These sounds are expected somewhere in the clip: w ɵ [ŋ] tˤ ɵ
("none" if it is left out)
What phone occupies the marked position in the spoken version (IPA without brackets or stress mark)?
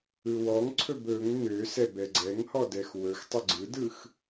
x